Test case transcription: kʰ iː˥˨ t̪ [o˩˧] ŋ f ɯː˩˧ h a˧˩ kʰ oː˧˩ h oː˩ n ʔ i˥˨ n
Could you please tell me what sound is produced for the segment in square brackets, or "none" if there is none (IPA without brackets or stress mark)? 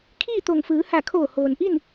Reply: o˧˩